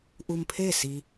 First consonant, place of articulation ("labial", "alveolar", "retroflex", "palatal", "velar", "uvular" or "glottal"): glottal